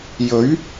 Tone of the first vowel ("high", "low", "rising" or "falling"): rising